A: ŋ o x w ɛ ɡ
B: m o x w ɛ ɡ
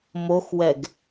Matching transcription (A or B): B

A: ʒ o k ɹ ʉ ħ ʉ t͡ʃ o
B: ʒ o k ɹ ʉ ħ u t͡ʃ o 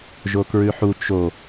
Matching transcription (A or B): B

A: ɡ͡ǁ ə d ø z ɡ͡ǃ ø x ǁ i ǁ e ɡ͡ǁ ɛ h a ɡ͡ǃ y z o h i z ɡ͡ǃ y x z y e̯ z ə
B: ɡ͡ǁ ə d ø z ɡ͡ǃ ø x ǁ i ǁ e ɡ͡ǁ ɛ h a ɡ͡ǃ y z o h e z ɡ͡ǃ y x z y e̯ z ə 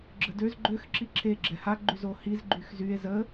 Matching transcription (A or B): A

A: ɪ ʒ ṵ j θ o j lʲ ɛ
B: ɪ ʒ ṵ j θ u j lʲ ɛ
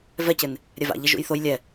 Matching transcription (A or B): A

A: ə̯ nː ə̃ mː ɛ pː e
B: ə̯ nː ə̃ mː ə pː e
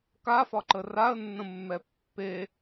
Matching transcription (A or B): A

